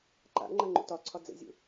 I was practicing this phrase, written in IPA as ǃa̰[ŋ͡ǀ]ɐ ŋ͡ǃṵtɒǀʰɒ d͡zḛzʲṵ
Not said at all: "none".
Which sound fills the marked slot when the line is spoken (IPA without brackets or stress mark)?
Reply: ŋ͡ǃ